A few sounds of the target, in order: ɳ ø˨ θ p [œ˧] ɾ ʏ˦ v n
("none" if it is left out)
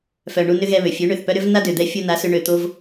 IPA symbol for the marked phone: œ˧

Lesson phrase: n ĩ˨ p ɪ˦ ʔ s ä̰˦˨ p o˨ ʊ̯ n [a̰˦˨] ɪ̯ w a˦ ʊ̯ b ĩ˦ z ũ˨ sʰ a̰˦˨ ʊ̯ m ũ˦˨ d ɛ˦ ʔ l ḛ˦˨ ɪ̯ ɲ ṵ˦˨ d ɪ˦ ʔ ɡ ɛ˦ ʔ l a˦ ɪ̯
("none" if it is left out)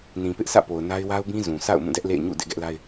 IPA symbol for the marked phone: a˦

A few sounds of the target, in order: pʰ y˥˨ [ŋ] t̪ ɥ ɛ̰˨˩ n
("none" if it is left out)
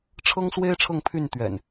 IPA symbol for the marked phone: n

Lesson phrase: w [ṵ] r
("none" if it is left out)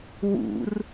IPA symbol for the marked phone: ṵ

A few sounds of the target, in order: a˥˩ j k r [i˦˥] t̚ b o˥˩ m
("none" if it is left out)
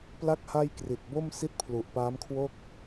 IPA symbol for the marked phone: i˨˩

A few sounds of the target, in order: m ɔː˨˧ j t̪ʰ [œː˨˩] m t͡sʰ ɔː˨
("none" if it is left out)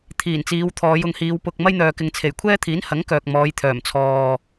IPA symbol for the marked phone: œː˨˩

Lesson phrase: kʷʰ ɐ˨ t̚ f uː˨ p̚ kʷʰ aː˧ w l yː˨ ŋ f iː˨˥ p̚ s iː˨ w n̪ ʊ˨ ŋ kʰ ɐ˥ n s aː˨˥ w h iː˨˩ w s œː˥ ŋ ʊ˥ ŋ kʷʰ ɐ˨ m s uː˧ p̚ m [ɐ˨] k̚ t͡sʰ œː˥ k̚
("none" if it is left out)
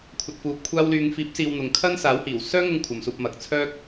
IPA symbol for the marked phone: ɐ˨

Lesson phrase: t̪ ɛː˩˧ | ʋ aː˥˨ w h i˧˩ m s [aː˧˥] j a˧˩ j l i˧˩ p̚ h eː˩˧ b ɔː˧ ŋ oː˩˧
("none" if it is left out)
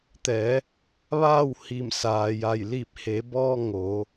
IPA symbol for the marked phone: aː˩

